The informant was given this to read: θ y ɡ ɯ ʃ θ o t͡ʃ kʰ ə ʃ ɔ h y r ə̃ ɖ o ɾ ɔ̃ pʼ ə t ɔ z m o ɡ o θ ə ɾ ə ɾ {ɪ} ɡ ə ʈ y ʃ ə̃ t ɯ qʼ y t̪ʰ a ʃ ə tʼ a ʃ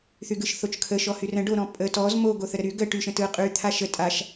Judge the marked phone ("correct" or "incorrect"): incorrect